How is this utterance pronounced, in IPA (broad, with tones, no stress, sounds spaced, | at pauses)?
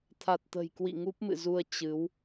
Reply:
t̪ʰ a˨˩ t̚ t̪ ə̤˨˩ j k w ḭ˧˨ ŋ u˦˥ p̚ m ɨ̰˧˨ z u˧ ə̯ t͡ɕ ɨ˨˦ w